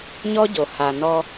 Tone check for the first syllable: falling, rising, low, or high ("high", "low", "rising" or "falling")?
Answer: high